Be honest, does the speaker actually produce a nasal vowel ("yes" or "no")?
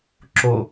no